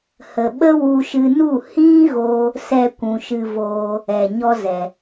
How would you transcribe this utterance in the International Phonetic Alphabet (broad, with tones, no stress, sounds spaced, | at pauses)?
h ə˨ ɓ ə˦ w u˧ ʃ ɨ˧ n u˦˨ h ĩ˦ ɣ o˧ | s ɛ˧ kʷ ũ˨ ʃ ɨ˧ v oː˧ | ɛ˨ ɲ ɔ˦ z ɛ˨